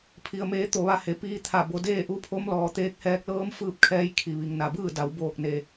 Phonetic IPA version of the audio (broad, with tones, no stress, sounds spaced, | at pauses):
pʰ i˩ ə̯ m eː˩˧ t̪ o˧˩ ʋ a˧ h e˩ p iː˧ t̪ʰ a˧˩ b o˩˧ d eː˥˨ ʔ u˧˥ pʰ o˧˥ m l ɔː˩ t̪ eː˧ k̚ h ɛː˧ k̚ l ɤː˧˥ m f ɯː˥˨ p̚ kʰ ɛː˧˥ j kʰ i˩ ʋ i˩ ŋ n a˩ b ɯː˥˨ d a˩˧ w b oː˧˩ k̚ n e˩